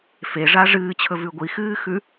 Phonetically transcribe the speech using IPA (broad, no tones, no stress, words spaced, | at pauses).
feʐa ʐɨːt͡ɕʰɵvʉ ɡʷixɨːxʉ